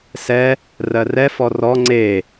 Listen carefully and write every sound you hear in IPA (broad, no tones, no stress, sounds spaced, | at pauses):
s ɛ | r ɜ r ɛ f ɔ r ɔ ŋ͡ǀ e